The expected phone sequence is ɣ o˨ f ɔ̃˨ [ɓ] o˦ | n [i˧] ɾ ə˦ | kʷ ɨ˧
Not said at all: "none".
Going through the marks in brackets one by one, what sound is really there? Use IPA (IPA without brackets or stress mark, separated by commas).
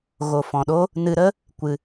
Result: ɗ, ɨ˧